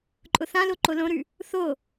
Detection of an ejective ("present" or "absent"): present